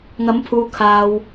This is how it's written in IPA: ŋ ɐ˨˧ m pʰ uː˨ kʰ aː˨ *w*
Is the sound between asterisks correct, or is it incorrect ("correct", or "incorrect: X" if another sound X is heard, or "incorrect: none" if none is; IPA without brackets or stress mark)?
correct